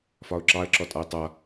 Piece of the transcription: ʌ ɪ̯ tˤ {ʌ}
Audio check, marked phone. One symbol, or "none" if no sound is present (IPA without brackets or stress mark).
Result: ʌ